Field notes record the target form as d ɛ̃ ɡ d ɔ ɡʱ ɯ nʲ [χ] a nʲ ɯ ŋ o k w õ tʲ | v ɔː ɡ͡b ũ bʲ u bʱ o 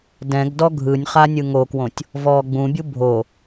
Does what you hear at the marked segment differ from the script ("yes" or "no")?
no